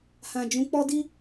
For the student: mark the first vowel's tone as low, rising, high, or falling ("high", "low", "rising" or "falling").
low